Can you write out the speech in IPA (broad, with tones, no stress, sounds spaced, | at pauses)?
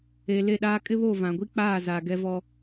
e˨ l e˦˨ ɗ aː˦ kʼ ɪ˦ β o˦˨ v ã˨ ɡʷ i˦ k͡p aː˦˨ z a˨ ɡ ɛ˦ v ɔ˦